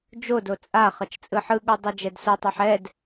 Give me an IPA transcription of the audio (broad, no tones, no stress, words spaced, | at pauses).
d͡ʒodo t͡sʼa χʌt͡ʃt͡sʼɯħɯɠu dˤɛd͡ʒɛdsotˤʌħ ɛd